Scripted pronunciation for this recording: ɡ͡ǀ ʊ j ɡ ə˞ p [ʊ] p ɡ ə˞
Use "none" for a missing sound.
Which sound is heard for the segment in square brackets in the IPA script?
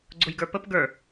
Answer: ə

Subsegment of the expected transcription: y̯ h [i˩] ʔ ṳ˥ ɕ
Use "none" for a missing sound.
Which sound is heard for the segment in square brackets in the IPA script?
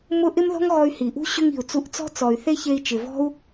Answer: i˩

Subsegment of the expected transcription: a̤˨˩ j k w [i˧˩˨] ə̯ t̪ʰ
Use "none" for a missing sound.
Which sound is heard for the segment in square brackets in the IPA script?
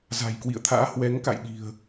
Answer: ḭ˧˨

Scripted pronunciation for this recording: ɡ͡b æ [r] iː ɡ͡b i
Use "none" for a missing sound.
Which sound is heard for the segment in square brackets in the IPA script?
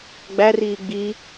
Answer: r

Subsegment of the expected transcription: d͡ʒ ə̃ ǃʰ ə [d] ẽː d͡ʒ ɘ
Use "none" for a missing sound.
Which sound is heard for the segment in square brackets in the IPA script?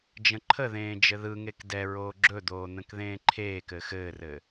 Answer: ð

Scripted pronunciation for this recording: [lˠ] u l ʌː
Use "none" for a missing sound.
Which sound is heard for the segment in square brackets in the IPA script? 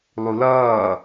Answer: lˠ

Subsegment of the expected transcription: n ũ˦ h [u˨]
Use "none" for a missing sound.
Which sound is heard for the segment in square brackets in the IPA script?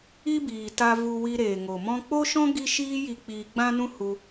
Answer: u˧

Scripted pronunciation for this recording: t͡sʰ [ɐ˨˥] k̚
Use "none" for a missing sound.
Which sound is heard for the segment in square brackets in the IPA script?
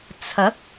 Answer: ɐ˨˥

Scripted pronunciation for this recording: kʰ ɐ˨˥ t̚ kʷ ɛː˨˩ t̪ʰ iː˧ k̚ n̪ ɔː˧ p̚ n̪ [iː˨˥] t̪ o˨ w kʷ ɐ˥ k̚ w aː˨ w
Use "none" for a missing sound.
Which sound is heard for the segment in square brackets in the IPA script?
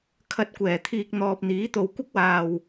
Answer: iː˨˥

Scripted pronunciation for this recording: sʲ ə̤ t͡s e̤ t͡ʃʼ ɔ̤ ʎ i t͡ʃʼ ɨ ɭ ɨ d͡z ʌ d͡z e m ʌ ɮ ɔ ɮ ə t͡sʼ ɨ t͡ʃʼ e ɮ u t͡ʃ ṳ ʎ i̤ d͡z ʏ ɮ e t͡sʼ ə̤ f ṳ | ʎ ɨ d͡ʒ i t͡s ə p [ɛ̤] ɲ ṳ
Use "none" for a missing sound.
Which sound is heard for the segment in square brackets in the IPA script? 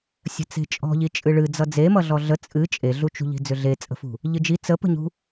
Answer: ə̤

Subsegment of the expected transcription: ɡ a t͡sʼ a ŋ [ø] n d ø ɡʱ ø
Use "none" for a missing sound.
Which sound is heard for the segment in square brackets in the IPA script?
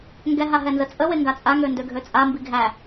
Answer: ø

